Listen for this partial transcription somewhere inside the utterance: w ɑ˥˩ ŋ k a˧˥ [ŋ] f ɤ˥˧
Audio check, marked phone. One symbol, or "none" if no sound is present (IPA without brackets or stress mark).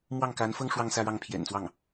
n